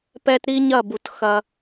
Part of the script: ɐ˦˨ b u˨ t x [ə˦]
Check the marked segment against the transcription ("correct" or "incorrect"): incorrect